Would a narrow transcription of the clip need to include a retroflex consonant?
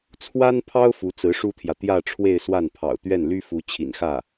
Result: yes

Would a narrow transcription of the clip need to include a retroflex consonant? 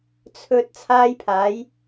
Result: no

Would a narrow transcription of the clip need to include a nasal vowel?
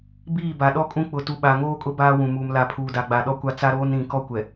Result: yes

